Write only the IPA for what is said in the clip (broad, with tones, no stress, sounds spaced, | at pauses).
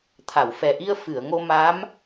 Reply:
t̪ʰ a˨˩˨ w f ɛ˨˩ ʔ i˧ ə̯ f ɨ˨˩˨ ə̯ ŋ o˧ m a˧˥ m